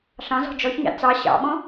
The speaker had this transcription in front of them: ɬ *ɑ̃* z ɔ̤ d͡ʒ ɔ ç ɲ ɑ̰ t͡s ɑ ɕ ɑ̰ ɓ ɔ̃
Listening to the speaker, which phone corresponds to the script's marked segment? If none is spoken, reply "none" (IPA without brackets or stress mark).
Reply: ɑ̃